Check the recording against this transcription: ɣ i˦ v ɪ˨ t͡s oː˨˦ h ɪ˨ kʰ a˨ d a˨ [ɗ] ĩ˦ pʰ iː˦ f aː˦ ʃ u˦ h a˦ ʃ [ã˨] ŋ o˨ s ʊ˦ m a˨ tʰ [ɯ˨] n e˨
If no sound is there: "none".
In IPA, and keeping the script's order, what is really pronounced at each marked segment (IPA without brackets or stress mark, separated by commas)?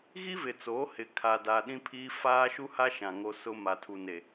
ɗ, ã˨, u˨